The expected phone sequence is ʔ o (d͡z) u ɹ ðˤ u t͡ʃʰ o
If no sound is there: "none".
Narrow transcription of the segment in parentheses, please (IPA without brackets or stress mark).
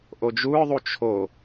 d͡ʒ